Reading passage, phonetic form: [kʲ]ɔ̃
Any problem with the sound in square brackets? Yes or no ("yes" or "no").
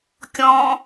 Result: no